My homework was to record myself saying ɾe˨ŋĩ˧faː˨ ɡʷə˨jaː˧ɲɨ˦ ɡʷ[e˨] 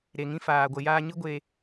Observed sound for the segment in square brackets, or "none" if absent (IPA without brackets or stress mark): e˧